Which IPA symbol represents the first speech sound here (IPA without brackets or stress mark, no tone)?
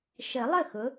ʃ